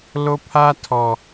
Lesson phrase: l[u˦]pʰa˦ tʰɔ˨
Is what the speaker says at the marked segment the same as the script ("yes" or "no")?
no